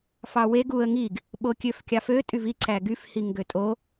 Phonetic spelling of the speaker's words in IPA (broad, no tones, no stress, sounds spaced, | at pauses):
f ɑ w e ɡ u ə̯ ŋ i ɡ | ɓ o kʲ ø f kʲ ɑ f ø tʼ y v i ǀ æ ɡ y f h i ŋ ɡ ø tʼ o